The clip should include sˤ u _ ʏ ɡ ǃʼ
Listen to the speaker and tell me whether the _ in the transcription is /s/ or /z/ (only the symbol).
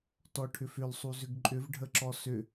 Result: z